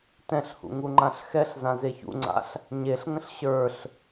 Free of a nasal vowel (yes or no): no